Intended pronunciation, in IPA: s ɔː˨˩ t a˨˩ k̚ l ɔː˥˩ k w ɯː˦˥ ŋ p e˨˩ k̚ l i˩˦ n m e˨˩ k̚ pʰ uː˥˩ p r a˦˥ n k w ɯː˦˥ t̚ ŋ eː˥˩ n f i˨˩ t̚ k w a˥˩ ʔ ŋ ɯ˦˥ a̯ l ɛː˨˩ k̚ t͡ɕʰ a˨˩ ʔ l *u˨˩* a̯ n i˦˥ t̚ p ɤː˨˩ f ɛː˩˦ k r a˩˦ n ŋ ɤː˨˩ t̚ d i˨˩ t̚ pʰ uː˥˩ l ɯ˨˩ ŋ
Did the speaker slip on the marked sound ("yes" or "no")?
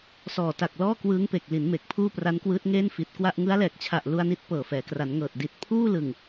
yes